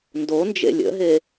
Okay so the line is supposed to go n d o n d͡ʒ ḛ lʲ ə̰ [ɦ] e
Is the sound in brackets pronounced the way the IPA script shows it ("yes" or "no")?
yes